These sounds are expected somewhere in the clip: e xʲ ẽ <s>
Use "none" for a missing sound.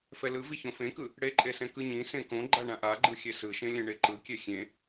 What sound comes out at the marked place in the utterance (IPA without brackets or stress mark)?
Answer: none